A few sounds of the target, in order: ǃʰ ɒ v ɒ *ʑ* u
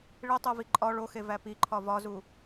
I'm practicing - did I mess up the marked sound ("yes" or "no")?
yes